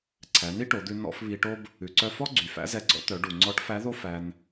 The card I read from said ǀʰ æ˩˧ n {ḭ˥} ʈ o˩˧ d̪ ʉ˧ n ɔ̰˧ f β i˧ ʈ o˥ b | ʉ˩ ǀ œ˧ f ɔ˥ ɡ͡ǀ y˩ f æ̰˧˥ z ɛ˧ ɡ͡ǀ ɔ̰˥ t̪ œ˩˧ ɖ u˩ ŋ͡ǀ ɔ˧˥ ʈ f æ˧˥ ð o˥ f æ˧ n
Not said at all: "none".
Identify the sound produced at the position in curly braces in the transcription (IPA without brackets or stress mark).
i˥